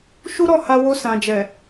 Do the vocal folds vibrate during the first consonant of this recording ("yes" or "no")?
no